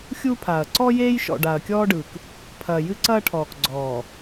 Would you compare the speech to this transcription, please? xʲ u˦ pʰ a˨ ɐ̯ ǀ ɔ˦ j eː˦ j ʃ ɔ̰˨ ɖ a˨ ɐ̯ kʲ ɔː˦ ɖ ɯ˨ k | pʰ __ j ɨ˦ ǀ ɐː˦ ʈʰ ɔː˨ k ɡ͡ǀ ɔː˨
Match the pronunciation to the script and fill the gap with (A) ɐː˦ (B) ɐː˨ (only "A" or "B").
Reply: B